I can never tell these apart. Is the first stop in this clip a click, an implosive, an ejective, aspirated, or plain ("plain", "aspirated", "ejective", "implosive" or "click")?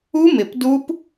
plain